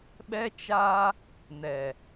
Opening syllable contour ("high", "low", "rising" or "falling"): high